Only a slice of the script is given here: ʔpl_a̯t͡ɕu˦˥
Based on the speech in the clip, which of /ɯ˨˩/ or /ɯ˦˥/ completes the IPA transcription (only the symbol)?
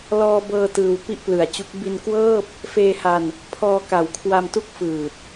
ɯ˨˩